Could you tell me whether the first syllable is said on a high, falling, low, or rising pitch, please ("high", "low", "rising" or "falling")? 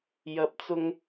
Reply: rising